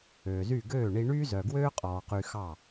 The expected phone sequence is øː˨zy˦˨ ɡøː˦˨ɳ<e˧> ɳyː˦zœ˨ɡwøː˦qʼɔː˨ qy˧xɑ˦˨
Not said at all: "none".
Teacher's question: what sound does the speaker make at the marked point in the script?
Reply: i˧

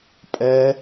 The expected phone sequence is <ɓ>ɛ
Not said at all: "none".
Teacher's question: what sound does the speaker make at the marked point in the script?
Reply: pʼ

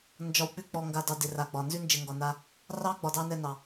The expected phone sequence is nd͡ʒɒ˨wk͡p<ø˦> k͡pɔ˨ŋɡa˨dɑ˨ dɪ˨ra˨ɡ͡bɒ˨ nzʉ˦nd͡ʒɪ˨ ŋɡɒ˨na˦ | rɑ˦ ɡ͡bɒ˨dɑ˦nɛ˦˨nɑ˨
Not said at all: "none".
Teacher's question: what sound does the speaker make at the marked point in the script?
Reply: ʉ˦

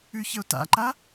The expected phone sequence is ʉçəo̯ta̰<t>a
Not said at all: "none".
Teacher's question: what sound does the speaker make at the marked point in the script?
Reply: ǃ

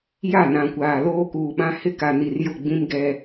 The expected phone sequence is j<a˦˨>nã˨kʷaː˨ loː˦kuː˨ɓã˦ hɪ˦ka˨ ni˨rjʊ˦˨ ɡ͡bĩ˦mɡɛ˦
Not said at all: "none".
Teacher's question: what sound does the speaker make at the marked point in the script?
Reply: a˦˨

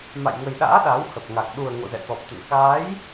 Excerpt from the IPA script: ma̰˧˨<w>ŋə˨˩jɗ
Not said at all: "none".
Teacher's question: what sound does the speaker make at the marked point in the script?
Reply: j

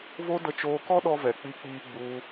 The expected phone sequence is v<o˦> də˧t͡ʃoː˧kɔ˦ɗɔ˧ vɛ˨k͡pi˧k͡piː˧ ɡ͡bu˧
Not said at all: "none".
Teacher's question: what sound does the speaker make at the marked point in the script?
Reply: o˦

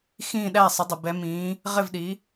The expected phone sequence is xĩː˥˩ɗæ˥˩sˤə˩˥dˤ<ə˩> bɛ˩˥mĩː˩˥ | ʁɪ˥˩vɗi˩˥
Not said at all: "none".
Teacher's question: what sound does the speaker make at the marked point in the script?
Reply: ə˩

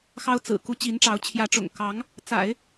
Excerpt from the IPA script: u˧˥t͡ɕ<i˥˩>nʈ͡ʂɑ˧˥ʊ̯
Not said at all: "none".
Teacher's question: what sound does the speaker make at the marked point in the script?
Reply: i˧˥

